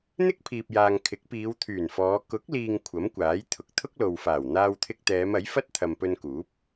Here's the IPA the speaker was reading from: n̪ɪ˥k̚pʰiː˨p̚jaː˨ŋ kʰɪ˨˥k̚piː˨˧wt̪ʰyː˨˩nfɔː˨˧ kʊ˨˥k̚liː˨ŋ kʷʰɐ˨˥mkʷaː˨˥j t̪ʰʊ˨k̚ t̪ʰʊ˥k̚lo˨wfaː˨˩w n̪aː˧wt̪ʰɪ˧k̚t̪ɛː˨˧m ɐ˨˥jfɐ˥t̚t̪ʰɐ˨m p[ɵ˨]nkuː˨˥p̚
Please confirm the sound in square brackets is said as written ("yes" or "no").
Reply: no